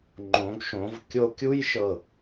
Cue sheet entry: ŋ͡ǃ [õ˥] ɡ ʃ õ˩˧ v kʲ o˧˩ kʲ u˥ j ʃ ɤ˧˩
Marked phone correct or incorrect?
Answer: incorrect